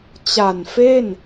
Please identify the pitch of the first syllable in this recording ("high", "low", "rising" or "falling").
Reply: low